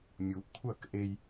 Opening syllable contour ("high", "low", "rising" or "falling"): low